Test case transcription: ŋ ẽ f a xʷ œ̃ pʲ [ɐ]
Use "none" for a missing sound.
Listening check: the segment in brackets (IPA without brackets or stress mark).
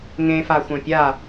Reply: a